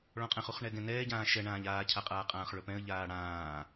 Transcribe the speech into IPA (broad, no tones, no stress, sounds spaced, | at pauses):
ɭ ɔ̃ qʼ ɛ̃ χ u χ ɳ ɛ ɡ ɛ̃ n ɛː ɟ ãː ʃ ɛ ɳ ãː ʎ aː cʰ a qʼ aː qʼ ãː χ ɭ ɵ p ɛ̃ ə̯ ʎ aː ɽ ãː